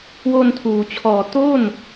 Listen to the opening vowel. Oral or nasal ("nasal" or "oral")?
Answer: oral